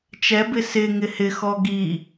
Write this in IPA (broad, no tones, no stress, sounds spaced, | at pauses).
t͡ʃ ɛ b ɪ s ɪ ŋ ɪ h ɪ x ɔ ɡ i